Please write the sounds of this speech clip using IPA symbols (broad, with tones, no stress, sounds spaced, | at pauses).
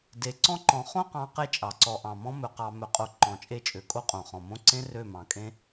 d e˨ ǀ ɔ̃˦ ǃ ɔ̃˨˦ χ õ˦ q ɑ̃˨˦ q e˦ t͡ʃʼ ɑ˨ ǀ ɔ˨ ʔ ɑ̃˨ m ɔ̃˦ m ɵ˨ q ɑ˨ m ɵ˨ qʼ o˨ ǃ ɔ̃˨ t͡ʃʼ e˦˨ t͡ʃʼ ø˨ kʼ o˦ qʼ õ˨ χ ɔ̃˨ m õ˦ ǀ ẽ˦ r ø˦˨ m ɑ̃˨ kʼ ẽ˦